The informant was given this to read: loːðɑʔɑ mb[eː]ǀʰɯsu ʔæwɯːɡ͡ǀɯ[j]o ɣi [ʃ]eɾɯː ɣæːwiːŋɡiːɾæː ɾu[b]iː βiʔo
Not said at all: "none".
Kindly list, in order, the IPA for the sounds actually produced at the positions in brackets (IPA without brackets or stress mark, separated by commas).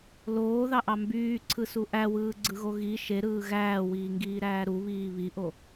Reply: yː, ɣ, ʃ, β